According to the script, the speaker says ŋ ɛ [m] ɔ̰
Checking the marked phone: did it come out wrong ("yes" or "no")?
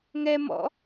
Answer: no